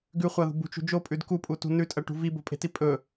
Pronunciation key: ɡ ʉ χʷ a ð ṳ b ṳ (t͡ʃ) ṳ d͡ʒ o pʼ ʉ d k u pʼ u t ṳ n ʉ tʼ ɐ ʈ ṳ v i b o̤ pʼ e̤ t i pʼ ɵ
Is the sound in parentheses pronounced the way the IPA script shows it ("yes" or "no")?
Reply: yes